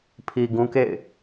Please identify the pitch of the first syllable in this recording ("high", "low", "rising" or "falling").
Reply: low